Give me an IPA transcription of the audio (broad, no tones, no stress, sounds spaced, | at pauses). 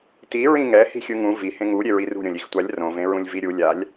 t i ɹ ĩ ŋ ɛ h i̤ xʲ ɯ ŋ ũ v i h ẽ ŋ u ɾʲ e ɹ i r ṳ ɾʲ õ lʲ i x tʷ a lʲ r õ v ẽ ɹ ũ lʲ v i ɾʲ u lʲ a lʲ